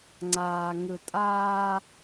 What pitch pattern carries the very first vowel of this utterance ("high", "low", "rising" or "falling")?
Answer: low